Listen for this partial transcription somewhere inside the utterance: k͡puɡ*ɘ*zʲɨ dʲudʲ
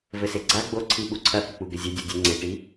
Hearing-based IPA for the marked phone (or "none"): ɘ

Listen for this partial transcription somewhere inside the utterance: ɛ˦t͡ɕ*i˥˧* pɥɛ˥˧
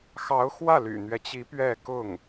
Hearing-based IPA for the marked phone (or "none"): i˧˥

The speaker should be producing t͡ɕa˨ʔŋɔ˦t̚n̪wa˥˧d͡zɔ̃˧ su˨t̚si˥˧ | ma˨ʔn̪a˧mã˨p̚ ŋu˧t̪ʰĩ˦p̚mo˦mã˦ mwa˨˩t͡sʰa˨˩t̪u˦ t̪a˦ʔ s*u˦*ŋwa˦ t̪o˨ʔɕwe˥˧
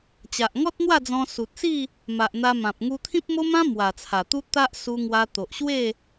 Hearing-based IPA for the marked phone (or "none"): u˦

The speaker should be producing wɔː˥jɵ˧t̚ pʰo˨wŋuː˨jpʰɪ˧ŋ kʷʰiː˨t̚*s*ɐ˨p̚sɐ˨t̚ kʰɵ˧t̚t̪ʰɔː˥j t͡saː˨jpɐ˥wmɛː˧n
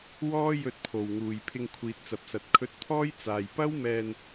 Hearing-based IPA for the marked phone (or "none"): t͡s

